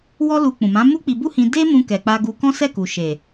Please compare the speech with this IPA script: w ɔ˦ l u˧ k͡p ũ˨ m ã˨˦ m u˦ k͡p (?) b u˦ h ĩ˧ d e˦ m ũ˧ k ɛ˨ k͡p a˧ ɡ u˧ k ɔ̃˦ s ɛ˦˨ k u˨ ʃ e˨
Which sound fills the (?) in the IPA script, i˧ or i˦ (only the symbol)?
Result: i˧